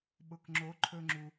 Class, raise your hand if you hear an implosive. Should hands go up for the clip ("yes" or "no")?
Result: yes